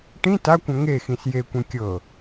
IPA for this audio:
ʈ ĩ t a kʷ ɐ̃ ŋ e x ĩ s j e kʷ ẽ kʲ ɤ

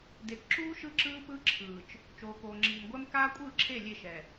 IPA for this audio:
d e˨ k ǁ uː˦ ʃ ɯ˦ ǁ ɯː˦ p ɯ˦ ǁʰ ɯː˨ t͡ʃ | t͡ʃ oː˨ k oː˨ ŋ͡ǁ iː˨ m ɡʷ ɛ˦ m k aː˦ kʷʼ ɯː˦˨ ǁʰ e˦˨ lʲ e˦˨ ʃ ɛ˨

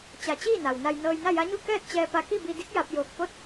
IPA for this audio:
t͡ɕ a˧˩ t͡ɕ iː˥˨ n a˩ w n a˧ j n ɤː˧ j n a˥˨ j a˧˥ ɲ u˥˨ k ɛː˥˨ t̚ t͡ɕ ɛː˧ p a˧ k i˥˨ b i˧ d i˧˥ k̚ j a˧ p̚ j oː˧˩ k̚ p o˥˨ t̚

